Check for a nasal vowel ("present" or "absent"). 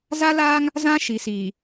present